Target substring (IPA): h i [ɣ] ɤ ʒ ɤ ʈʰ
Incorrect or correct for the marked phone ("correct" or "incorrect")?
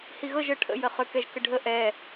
correct